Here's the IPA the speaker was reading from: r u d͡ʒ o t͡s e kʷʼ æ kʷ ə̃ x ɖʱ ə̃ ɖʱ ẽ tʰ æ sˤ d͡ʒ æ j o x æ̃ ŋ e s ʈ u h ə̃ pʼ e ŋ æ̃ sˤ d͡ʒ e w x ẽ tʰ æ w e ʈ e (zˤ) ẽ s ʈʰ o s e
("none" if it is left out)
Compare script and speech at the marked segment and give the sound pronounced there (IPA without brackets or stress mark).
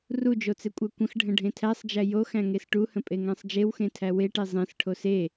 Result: zˤ